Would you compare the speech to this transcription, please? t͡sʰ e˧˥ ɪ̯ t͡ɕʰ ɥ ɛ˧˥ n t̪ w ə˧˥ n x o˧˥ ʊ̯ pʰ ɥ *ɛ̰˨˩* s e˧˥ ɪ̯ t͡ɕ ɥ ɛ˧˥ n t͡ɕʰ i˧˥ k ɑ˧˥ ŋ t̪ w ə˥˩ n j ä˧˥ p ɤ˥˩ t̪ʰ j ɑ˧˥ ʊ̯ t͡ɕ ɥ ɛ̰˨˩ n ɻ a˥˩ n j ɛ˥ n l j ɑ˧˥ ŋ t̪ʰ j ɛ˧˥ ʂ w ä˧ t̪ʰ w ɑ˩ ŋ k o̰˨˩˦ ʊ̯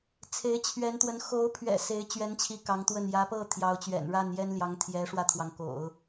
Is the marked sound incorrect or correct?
correct